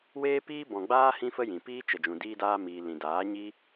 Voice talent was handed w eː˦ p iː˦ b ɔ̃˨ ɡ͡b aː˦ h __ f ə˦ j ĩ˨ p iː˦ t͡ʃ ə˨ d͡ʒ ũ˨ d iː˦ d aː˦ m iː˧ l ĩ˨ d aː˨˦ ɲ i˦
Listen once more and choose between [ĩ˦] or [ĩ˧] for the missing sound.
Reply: ĩ˦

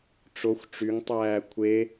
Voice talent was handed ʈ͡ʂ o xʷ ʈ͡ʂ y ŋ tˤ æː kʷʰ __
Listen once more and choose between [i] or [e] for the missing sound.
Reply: e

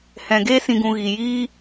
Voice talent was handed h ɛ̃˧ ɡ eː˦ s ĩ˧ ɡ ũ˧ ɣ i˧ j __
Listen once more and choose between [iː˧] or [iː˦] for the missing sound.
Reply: iː˦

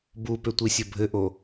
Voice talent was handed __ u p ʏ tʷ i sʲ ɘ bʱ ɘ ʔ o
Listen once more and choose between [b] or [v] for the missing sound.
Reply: b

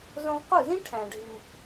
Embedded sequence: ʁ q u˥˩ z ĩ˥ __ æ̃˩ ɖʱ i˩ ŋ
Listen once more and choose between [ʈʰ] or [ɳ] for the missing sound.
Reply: ʈʰ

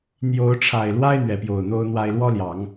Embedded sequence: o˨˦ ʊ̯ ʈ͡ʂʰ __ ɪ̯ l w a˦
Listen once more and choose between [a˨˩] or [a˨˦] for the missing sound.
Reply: a˨˩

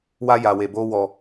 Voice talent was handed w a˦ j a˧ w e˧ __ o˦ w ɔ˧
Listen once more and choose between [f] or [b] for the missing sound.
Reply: b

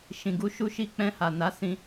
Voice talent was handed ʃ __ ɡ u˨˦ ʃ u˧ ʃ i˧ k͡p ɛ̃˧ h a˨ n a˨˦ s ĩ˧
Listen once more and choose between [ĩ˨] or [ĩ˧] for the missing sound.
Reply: ĩ˨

